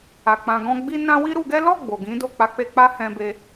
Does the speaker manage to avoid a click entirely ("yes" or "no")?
yes